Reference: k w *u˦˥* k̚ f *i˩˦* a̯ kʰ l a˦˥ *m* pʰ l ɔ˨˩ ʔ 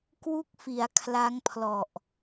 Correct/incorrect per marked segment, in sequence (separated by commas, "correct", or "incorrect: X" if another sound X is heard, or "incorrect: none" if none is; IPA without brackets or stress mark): incorrect: u˥˩, correct, incorrect: ŋ